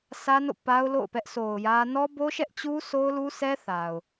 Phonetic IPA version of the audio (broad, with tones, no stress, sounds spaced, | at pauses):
s ä˦ n o̰˦˨ p a˦ ʊ̯ l o̰˦˨ ʊ̯ p ɛ˦ ʔ s o˨ ʊ̯ j ä˦ n ɔ˦ b o˦ ʃ ɛ˦ ʔ t͡ɕ u˦ s o˦ ʊ̯ l u˦ sʰ ɛ˦ θ a˨ ʊ̯